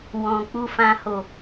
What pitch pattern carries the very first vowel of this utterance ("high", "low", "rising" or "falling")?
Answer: low